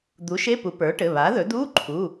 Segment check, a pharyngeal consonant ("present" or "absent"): absent